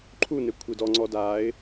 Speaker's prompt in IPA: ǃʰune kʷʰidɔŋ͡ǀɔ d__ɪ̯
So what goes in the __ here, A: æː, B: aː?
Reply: B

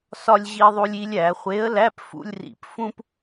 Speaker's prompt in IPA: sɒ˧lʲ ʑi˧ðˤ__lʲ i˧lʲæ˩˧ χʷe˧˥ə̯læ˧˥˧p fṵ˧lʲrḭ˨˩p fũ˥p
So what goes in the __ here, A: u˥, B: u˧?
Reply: B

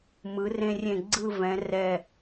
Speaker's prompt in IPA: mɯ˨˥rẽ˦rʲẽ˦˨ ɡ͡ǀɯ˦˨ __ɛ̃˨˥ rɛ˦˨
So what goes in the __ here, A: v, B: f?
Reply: A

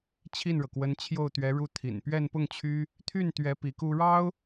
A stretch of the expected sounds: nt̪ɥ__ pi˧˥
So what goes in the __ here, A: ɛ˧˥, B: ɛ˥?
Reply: A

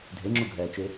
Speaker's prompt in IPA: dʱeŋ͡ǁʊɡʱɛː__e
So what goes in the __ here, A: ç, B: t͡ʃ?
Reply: B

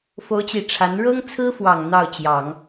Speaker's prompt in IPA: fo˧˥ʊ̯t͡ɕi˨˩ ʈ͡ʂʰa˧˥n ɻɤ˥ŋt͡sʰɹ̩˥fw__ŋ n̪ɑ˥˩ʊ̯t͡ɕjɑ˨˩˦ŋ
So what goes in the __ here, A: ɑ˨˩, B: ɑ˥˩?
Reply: A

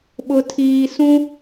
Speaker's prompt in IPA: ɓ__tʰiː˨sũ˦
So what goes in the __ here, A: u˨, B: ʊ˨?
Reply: B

